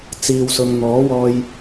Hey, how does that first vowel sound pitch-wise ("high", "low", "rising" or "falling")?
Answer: low